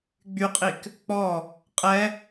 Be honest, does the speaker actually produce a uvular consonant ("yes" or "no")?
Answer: yes